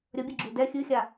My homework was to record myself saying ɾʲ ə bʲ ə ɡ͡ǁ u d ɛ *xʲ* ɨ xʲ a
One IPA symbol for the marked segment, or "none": xʲ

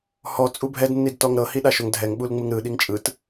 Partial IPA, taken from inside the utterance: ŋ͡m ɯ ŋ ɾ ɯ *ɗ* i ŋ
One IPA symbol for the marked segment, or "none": ɗ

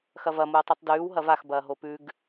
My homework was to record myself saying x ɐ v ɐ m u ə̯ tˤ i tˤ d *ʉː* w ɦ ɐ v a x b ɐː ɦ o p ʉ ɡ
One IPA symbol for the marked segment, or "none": ʉː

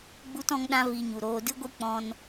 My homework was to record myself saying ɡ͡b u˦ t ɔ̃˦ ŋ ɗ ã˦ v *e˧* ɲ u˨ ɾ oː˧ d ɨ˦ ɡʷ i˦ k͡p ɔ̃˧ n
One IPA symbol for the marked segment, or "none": i˧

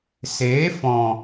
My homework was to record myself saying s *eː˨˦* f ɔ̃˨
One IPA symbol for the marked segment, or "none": eː˨˦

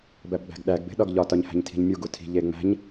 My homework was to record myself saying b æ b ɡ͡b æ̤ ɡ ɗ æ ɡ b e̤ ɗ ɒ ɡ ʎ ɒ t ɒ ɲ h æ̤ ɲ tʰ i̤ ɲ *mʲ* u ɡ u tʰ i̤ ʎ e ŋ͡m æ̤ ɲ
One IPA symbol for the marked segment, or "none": mʲ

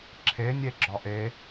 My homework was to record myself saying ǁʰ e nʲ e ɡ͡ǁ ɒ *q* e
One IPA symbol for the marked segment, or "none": ʔ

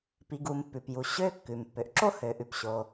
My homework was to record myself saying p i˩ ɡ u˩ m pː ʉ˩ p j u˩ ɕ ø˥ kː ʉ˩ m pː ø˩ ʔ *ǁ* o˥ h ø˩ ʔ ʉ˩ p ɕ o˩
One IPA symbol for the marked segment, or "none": ǁ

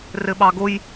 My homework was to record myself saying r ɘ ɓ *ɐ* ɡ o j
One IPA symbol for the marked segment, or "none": ɑ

